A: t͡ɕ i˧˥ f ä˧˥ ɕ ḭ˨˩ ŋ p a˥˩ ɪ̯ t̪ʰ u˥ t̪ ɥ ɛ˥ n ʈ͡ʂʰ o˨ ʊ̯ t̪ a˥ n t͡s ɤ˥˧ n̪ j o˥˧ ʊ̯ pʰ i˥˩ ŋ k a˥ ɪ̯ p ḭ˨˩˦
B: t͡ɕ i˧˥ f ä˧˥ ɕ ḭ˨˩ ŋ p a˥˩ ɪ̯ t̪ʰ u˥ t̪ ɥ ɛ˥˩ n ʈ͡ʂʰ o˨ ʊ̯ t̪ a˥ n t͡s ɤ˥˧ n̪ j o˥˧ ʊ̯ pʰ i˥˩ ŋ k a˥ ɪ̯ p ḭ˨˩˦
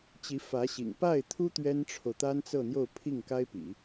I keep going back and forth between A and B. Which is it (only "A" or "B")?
A